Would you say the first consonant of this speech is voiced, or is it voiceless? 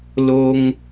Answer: voiced